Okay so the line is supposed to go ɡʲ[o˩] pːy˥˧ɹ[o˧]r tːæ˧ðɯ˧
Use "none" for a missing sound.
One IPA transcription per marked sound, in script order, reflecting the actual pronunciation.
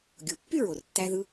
o˩, o˩

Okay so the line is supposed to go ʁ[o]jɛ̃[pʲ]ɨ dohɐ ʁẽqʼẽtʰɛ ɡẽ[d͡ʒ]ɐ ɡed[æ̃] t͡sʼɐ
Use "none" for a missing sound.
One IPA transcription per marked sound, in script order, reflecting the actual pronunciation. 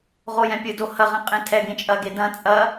o, pʲ, t͡ʃʼ, ɐ̃

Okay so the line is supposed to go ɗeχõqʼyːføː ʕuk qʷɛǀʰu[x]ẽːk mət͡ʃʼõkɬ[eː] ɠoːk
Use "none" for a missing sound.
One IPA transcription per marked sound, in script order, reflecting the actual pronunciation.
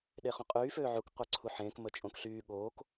ħ, yː

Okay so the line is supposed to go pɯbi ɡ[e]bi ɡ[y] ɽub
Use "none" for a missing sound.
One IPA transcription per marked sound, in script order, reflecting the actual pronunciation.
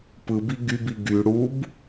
y, y

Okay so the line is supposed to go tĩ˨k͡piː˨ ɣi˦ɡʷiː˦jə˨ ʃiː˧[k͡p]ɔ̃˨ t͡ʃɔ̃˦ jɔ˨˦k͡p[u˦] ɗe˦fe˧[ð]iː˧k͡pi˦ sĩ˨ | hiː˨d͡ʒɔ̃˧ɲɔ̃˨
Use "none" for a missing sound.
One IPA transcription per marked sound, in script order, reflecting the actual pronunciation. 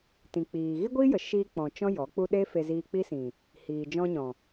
k͡p, u˦, z

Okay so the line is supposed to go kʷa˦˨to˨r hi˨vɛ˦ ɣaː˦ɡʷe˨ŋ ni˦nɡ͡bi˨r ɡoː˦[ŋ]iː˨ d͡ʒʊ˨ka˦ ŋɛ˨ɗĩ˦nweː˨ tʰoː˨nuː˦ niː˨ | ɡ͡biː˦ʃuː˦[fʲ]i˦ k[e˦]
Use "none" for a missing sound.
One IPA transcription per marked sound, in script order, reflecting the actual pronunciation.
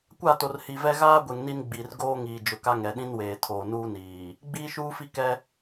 ŋ, f, ɛ˦

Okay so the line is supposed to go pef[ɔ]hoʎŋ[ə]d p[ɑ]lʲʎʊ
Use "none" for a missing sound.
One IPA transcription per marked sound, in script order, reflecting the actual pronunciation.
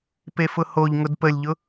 ʊ, ʊ, ə

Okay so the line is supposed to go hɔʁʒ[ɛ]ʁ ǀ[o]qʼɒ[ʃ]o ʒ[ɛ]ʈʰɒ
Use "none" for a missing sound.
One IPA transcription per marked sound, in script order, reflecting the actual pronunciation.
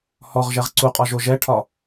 ɛ, u, ʒ, ɛ

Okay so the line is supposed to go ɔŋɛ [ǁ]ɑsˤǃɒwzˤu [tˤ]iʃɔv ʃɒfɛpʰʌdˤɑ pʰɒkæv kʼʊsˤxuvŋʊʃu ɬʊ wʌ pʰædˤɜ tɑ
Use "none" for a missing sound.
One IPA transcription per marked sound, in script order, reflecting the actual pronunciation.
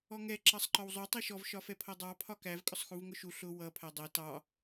ǁ, tˤ

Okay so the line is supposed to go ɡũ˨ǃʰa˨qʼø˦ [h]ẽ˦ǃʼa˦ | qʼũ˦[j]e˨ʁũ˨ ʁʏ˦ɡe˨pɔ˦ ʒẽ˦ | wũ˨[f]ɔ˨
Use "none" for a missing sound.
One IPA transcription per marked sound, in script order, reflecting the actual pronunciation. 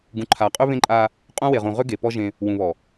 β, w, β

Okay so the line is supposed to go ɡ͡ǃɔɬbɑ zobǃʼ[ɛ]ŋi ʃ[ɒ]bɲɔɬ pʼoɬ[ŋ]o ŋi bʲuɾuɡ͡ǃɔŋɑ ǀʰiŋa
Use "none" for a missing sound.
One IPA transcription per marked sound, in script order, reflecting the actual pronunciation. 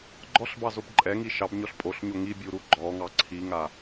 ɛ, ɑ, ɲ

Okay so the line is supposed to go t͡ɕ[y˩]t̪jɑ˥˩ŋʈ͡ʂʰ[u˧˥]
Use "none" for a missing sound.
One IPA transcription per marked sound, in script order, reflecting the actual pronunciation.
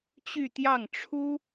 y˥˧, u˥

